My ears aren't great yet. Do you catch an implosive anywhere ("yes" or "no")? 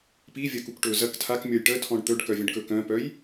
no